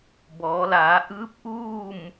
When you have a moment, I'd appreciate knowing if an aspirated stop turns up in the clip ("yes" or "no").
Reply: no